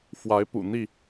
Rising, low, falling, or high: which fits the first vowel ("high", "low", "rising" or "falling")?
rising